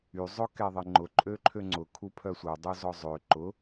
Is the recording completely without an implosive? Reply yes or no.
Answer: yes